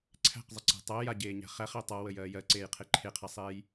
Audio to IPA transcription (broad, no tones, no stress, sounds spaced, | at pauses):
ǀʰ æ̤ q zˤ ə ǀ æ̤ tˤ æ j a ɟ eː ɲ æ̤ χ æ χ e tˤ a w ə j ɜː j ɜ ǀ eː j qʰ e ǃʰ e qʰ æ sˤ eː j